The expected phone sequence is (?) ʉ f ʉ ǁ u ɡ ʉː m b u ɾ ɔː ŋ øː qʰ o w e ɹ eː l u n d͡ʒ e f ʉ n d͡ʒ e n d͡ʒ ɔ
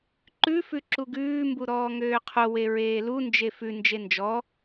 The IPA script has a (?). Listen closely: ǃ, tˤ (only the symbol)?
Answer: ǃ